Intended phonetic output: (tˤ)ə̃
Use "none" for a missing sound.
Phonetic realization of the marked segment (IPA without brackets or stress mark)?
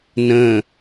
n